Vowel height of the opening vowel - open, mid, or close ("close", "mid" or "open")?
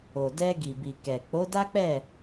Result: mid